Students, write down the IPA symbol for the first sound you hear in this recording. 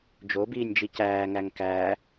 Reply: d͡ʒ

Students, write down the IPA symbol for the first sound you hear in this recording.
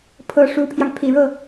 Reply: pʰ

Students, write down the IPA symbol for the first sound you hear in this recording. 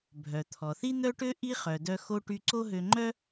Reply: bʱ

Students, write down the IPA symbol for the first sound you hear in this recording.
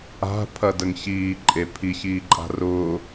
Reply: a̤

